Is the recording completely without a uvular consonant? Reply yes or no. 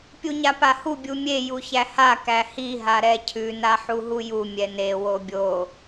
yes